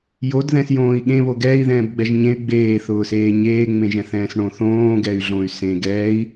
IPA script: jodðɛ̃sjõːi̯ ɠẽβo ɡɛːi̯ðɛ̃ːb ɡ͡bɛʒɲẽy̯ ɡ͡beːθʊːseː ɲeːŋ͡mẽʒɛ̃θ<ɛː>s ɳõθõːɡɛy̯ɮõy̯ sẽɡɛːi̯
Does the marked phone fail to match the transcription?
yes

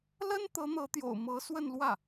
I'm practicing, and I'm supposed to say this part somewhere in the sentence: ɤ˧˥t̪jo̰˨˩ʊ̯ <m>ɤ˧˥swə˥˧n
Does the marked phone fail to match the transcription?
no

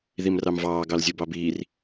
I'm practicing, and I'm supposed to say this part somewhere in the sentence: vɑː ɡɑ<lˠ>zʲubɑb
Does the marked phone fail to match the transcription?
yes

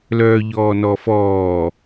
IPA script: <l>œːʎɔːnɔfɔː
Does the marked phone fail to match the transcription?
no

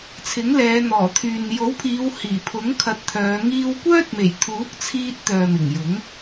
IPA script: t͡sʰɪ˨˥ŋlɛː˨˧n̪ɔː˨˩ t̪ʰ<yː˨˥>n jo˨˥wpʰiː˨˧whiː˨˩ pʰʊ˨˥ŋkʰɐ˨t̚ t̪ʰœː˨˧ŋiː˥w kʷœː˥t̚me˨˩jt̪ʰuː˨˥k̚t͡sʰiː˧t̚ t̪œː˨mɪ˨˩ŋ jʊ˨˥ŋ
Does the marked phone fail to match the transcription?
yes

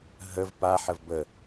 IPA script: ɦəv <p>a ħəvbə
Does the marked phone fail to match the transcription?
no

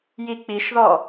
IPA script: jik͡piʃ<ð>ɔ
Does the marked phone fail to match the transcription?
no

